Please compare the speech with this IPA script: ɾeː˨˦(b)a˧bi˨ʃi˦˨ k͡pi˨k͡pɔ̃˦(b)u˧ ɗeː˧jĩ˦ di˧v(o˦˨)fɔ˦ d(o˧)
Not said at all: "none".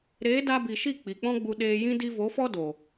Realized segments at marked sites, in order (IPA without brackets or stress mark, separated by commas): d, ɡ͡b, o˨˦, o˨